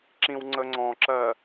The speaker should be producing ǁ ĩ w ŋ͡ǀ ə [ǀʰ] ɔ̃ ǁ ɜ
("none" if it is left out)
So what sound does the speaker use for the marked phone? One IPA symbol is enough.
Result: ŋ͡ǀ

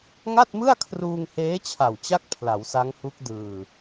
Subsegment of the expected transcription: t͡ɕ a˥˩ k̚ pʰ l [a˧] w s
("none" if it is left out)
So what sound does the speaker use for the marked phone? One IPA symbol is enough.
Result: a˩˦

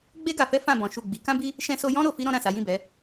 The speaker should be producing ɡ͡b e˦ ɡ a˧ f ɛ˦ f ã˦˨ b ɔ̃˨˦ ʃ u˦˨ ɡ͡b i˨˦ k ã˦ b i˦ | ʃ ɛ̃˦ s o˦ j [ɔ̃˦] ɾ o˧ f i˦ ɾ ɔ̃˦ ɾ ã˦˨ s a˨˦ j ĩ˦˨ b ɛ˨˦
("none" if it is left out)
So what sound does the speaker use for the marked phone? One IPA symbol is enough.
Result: ɔ̃˦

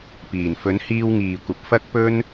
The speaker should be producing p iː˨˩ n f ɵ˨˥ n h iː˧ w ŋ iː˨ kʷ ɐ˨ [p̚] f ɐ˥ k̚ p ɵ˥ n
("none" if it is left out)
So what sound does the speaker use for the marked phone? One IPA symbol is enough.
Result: p̚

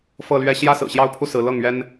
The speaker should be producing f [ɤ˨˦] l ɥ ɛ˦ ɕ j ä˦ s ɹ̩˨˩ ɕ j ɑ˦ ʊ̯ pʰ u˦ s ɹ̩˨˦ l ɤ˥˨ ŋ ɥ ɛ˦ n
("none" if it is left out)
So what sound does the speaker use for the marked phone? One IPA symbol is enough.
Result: ɤ˥˨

